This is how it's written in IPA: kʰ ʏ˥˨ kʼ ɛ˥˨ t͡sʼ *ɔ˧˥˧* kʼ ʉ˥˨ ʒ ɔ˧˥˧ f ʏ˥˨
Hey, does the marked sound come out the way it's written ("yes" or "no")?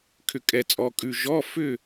yes